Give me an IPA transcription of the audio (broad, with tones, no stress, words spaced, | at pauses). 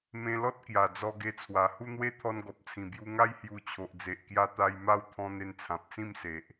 mẽ˧lɔ˦t̚ kja˨˩d͡zɔ˧ɡe˧t͡sʰwa˨˩ hu˦n̪we˦ t̪ʰɔ˧nɡɔ˨p̚t͡sʰĩ˨˩ bju˧ŋa˦j hju˧t͡ɕʰo˨ʔd͡ze˨ʔ kja˧t̪a˧j ma˥˧wt̪ʰɔ̃˧ n̪e˧nt͡sʰã˨p̚t͡sĩ˥˧mse˨ʔ